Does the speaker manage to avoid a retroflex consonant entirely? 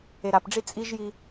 no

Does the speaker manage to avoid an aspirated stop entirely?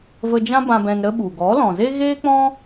yes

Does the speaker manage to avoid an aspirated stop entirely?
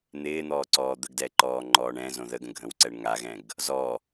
yes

